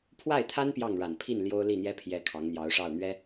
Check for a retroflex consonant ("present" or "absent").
present